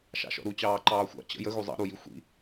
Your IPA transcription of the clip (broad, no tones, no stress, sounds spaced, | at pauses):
ʃ ɑ̰ ʃ ɔ̰ ɾ u t͡ɕ ɑː ǃ ɑː xʷ ɑ̰ t͡ɕ ə̰ j ə ɣ u zˤ ɑ̰ ɾ u j i xʷ ḭ